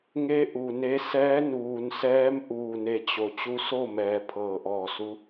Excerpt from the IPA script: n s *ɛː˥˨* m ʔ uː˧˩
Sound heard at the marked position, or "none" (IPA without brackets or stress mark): ɛː˧˥